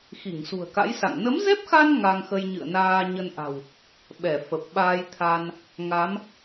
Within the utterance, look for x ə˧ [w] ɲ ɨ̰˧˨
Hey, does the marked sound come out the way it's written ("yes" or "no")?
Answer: no